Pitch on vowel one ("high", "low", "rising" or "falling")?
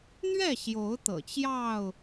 falling